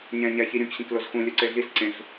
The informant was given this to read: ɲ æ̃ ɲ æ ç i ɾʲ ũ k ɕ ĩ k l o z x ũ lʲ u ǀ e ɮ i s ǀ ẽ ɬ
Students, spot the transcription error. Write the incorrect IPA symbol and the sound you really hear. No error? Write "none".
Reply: none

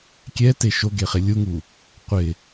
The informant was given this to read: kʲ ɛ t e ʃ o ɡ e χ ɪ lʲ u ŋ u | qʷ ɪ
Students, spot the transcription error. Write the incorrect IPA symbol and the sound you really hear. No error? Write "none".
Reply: none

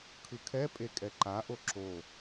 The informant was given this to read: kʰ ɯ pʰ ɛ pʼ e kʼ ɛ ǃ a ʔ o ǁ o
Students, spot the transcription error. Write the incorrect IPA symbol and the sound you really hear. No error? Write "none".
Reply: pʰ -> kʰ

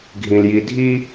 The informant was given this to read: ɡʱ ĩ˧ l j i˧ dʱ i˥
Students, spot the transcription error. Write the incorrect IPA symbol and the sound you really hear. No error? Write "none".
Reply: none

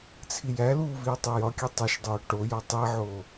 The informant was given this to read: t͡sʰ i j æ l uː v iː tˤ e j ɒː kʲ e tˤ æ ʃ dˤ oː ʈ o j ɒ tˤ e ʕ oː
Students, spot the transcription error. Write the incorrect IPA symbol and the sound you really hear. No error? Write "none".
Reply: ɒː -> ɒ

